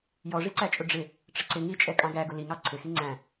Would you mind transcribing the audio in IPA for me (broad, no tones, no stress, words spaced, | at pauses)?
jɔʐiǀæt͡ʃʼʊ ɖ͡ʐɪ | ʈ͡ʂəǀɪ ŋit͡ʃʼɛ kʼɑ̃ɡæɡʊ liŋɑ ǀʰɪxi ŋ͡ǀæ̃